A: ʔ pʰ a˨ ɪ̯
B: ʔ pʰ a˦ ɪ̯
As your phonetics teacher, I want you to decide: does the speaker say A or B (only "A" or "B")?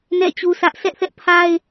B